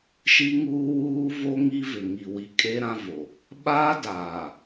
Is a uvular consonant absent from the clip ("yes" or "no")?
yes